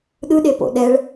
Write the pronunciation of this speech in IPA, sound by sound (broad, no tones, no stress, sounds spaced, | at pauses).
ɗ ɯ ɗ e p o̰ ɗ ɛ ɭ